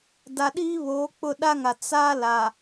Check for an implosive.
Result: present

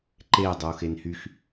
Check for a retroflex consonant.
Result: absent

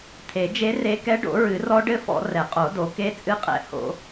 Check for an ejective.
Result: present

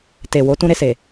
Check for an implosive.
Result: absent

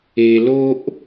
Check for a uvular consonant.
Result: absent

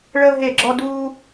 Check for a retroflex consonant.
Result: present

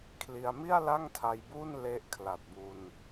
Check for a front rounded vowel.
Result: absent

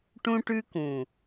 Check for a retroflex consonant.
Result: present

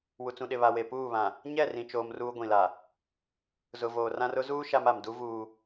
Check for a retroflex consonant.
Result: absent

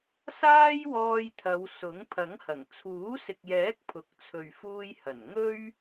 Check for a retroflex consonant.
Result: absent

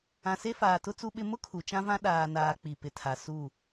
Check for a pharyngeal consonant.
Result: absent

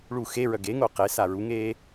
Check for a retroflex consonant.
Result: present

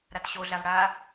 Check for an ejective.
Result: absent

